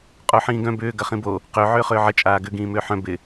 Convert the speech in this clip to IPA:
qʼ o ħ ĩː ɡ œ̃ b ʏː ɡ ɐ χ ĩ b o | q ø ʕ ʏː χ ʏː ʕ ə t͡ʃʼ aː ɡ ʏ ɡ ĩː m ʏː ħ œ̃ b ɪ

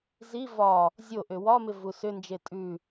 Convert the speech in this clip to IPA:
z i v ɒ | zʲ o ʔ ʏ w ɒ m ɪ v u s ʏ n d͡ʒ e tʼ ʉ

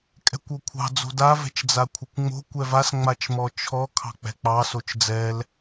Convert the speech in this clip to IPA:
kʼ ɛ̤ kʷ o kʷʰ ɑ̤ d͡z o̤ d a v ɛ̤ t͡ʃ d͡z a kʷʰ ɪ kʷ ŋ͡m o̤ kʷ ɛ v a s ŋ͡m a t͡ʃ m ɔ t͡ʃʰ ɔ kʰ ɑ̤ k͡p ɛ̤ k͡p ɑ s o t͡ʃ d͡z ɛ l

